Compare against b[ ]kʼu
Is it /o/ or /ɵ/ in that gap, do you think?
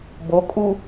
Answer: o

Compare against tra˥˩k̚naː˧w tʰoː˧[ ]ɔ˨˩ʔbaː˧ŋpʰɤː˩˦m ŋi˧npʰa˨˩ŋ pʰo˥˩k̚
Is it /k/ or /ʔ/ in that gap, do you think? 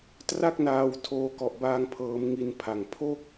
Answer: k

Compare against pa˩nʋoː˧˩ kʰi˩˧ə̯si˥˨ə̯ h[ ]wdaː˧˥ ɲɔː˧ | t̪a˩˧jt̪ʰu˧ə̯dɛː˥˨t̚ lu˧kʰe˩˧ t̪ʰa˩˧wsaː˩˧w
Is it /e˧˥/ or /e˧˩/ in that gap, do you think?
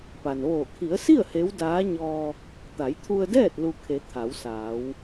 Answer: e˧˥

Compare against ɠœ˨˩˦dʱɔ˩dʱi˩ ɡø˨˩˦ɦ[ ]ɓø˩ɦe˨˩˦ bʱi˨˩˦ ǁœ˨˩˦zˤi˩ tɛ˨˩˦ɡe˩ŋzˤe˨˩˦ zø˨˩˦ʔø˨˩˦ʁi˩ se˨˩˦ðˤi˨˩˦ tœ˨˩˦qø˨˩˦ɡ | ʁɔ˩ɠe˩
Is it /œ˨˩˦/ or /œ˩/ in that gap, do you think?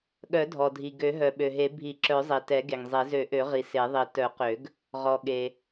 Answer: œ˩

